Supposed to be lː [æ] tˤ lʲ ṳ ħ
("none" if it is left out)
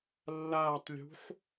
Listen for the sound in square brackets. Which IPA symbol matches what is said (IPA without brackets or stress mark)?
a